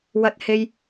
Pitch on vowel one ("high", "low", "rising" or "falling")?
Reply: high